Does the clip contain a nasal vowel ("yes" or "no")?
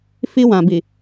yes